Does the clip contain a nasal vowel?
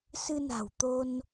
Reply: no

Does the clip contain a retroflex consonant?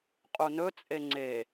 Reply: no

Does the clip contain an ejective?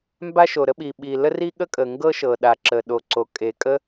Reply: yes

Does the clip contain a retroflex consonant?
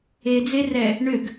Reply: yes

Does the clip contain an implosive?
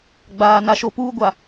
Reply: no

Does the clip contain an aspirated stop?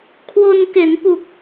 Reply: yes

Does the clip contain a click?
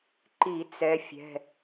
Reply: yes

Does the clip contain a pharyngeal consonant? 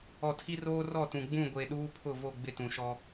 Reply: no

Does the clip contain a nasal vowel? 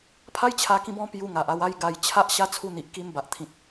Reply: yes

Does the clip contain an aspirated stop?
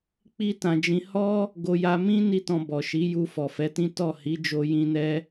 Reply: no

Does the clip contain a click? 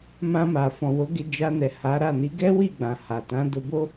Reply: no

